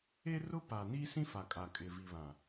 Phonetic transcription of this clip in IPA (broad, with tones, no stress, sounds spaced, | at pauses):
e˦ r ʊ˦ p a˨ n i˦ s ĩ˦ f a˨ kʼ a˨ kʼ ɪ˨ v i˨ β ã˨